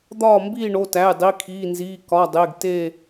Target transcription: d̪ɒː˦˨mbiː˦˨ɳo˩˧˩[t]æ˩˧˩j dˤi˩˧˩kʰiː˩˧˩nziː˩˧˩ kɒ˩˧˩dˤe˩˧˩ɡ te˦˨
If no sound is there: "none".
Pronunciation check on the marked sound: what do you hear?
t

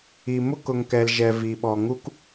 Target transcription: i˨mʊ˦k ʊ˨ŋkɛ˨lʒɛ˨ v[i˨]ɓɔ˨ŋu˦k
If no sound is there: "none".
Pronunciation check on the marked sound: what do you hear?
i˨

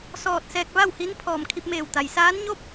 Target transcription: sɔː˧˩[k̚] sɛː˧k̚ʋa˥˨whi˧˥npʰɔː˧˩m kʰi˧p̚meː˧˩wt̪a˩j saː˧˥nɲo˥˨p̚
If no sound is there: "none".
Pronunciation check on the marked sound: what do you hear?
t̚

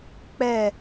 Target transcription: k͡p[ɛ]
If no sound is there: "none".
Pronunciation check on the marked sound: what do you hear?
ɛ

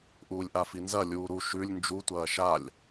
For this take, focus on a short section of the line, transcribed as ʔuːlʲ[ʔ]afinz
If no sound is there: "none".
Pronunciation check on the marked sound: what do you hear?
ʔ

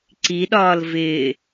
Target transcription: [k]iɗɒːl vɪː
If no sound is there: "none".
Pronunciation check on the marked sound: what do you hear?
ǀ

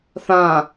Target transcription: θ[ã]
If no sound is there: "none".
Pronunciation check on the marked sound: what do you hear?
ã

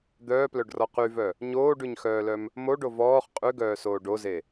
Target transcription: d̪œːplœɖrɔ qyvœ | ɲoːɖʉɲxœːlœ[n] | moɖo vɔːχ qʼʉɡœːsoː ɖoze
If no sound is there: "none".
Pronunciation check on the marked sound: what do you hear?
m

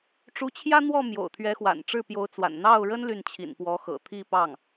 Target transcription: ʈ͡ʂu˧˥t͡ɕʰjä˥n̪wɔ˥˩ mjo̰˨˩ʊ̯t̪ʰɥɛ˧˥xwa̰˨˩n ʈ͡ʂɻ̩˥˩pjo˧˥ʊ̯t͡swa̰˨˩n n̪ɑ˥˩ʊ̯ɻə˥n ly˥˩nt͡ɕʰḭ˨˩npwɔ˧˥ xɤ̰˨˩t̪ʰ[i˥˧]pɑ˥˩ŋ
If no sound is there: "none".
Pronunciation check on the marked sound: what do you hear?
i˥˧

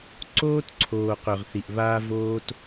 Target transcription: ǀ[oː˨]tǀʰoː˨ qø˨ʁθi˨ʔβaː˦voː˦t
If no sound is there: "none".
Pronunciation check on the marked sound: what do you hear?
oː˦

